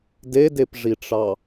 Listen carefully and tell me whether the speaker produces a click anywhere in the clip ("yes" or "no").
no